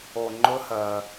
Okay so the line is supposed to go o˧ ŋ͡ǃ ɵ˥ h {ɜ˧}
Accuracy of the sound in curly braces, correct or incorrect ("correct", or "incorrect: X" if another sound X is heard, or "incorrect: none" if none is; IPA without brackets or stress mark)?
correct